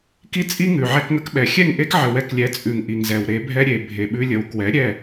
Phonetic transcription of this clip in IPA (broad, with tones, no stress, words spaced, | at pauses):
ki˦t͡sʼi˦ŋʉ˨ ʕɛ˧kŋə˧kɓɛ˨ xʲɛ˦˨ŋʔe˦kʕə˨ wɛ˧klʲɛ˨˦t͡sʼʉ˨ŋ ʔi˨ŋzɛ˨wɾe˨˦bʱɛ˦ ɾʲe˨ bʱe˨ɓʉ˧ lʲə˨wkwɛ˨˦ ɾʲɛ˦˨